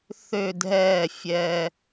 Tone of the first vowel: falling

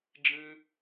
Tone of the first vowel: high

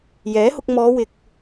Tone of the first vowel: rising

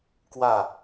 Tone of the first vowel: falling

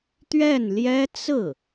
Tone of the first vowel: falling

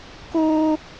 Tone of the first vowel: high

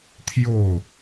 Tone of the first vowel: falling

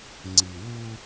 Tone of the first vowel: low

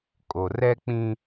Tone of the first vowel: low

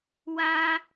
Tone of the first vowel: high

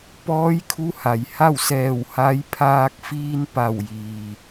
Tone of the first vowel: rising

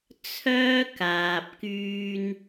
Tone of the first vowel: high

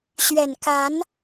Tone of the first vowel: low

